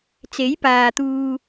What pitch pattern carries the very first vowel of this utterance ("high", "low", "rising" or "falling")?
rising